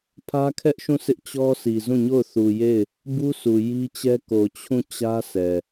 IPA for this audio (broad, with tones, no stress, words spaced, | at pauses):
pʰä˦kʰɛ˦ʔʃũ˦˨sɪ˦ʔ t͡ɕɔ˦sʰi˨ zũ˦˨ɲo˦˨ʊ̯ θu˨je˦˨ɪ̯ | bu˦sʰu˨ ji˦t͡ɕɛ˦ ko˨t͡ɕʰũ˦˨ t͡ɕä˦sʰɛ˨